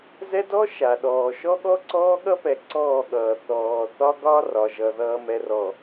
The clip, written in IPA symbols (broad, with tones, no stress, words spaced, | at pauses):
zɛ˦dɔ˦ ʃa˨ɗɔː˨ ʃɔ˦ɠɔ˦ ǀɔː˦ɠʌ˦pɛ˨ ǀɔː˦˨ɠʌː˨ θɔː˨θɒ˦ ɡɒ˦ rɒ˨ʒʌ˨ ðʌː˨mɛ˨rɔ˨